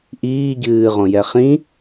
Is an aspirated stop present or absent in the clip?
absent